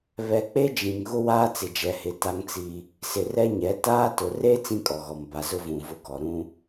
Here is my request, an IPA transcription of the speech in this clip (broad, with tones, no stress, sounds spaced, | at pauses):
β ɛ˨ k͡p e˦ d͡ʒ ĩ˨ ŋ ɣ ʊ˦ w aː˦ t͡s ɪ˨ d͡ʒ ɛ˨ h ɪ˨ t a˦ ŋ t͡s i˦ | s ɪ˨ r ɛ˦ ɲ ɛ˨˦ t aː˦ t ʊ˨ r e˦ t͡s ĩ˦ kʼ ɔ˨ ɣ ɔ˨ m b a˨ z ʊ˦ v ũ˨ v ʊ˨ ɡ ɔ˨ ɾ ũ˦